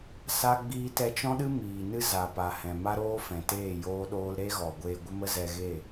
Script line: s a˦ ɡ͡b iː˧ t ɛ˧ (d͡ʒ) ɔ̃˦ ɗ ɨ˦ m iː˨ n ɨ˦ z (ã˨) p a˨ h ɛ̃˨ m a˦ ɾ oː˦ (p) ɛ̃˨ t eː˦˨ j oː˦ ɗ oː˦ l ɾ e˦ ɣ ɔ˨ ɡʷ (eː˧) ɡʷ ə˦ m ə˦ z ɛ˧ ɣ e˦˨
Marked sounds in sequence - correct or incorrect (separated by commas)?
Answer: incorrect, incorrect, incorrect, correct